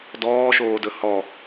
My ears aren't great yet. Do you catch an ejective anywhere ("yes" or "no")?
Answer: no